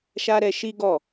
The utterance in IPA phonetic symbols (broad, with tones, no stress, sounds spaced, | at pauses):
ʃ a˦ ɾ ɛ˧ ʃ i˦ ɡ ɔ˦˨